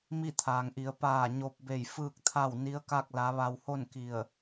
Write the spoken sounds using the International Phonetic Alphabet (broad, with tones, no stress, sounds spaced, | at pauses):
m i˥˨ t̪ʰ aː˩ ŋ ʔ i˩˧ ə̯ p aː˧˩ ɲ o˧ p̚ b e˧˩ j f ɯː˥˨ k̚ t̪ʰ a˥˨ w n i˧˥ ə̯ k a˥˨ k̚ l a˧˥ ʋ a˧ w h o˥˨ n k i˧˩ ə̯